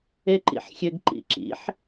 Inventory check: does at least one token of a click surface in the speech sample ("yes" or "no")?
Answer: yes